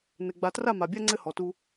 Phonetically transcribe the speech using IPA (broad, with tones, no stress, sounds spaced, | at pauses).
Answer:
n ɘ˨ ɡ͡b a˨ t r a˦˨ m a˨ bʲ a˦ ŋ͡ǀ ɘ˦ h ɔ˨ t u˦